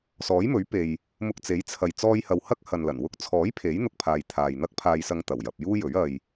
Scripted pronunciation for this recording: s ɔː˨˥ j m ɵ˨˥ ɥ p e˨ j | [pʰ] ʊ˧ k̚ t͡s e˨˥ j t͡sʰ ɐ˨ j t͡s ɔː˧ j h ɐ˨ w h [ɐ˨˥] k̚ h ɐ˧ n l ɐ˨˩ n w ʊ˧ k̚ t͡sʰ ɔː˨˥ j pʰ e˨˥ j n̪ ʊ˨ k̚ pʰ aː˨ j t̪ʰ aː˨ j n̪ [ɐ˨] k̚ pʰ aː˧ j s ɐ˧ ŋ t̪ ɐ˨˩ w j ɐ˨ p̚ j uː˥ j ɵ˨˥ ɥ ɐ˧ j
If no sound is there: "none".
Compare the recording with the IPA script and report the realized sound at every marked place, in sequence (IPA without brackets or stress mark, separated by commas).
m, ɐ˥, ɐ˥